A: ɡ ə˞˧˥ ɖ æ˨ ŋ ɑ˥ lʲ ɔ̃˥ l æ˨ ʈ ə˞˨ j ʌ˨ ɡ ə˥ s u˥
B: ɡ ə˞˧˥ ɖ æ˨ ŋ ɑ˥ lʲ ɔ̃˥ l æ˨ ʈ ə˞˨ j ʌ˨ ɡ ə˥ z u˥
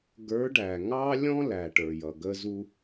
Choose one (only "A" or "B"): B